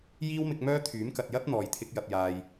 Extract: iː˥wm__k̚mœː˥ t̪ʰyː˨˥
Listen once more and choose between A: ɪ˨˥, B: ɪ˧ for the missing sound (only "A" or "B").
B